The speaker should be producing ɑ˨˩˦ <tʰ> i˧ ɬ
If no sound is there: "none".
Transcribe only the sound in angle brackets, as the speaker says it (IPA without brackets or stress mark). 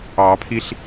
pʰ